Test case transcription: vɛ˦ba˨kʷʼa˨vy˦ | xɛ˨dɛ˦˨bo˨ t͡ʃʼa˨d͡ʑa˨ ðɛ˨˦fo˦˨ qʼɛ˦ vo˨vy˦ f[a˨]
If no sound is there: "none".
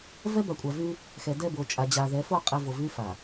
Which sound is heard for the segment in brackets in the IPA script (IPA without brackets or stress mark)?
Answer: a˨